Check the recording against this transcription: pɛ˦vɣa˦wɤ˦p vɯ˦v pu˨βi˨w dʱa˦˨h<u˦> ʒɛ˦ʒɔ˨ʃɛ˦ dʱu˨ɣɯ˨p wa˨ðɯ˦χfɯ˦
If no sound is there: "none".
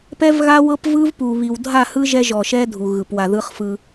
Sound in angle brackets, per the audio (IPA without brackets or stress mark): ɯ˦